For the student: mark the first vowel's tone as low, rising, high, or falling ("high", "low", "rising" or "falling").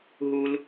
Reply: high